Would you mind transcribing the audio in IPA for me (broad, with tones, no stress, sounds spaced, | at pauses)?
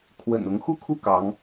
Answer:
kʰ w ə̰˨˩ n ʊ˧˥ ŋ x u˥˧ kʰ u˥˩ k ɑ˧˥ ŋ